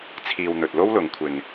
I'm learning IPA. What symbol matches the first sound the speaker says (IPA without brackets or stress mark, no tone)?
t͡sʰ